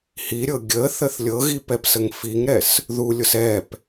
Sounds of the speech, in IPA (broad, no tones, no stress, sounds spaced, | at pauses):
h i ɾʲ ɤ ɡʲ ə θ ə θ lʲ ɤ ɣ i p ɛ p s ə ŋ f i ŋ ɾ ɛ s | ð u lʲ ʊ s ɛ p